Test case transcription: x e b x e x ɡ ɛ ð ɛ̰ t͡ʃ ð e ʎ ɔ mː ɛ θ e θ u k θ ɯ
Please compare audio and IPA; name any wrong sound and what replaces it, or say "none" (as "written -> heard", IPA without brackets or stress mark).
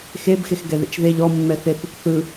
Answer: none